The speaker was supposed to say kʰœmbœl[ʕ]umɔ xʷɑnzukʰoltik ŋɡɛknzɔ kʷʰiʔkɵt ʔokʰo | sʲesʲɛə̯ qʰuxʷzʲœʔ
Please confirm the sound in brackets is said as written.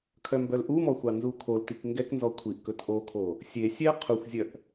no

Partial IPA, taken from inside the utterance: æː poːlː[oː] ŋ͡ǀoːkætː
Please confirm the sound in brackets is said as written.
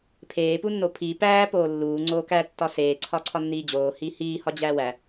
no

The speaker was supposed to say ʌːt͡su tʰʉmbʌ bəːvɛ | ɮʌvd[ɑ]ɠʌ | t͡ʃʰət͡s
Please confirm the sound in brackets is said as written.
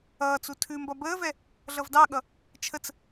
yes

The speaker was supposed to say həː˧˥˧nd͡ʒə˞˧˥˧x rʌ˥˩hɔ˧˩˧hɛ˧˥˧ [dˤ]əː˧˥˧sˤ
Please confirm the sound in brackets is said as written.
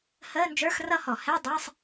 yes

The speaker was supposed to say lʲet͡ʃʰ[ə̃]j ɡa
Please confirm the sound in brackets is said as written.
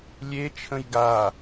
yes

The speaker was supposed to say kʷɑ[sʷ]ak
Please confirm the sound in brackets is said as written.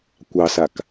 no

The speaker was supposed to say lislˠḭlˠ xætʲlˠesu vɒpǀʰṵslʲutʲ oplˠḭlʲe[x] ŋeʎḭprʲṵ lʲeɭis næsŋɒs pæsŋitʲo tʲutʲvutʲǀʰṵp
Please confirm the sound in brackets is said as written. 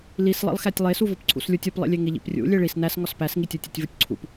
no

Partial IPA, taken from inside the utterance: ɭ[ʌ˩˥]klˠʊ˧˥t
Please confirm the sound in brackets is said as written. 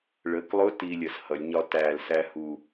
no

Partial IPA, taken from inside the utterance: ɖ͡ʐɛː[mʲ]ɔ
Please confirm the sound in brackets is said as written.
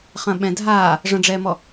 no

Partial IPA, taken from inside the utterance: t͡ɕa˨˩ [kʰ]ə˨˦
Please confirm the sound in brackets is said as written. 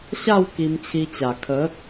yes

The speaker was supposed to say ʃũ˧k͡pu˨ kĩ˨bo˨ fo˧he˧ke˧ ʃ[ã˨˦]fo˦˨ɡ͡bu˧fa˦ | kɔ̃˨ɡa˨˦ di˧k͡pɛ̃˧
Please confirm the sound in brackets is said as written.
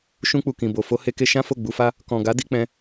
no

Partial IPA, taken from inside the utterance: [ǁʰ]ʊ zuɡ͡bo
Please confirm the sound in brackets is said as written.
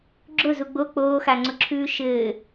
no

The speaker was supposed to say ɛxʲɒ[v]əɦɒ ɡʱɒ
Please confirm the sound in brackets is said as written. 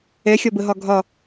no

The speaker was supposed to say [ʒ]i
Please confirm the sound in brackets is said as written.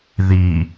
no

